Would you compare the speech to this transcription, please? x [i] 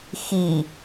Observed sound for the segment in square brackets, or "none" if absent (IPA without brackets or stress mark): i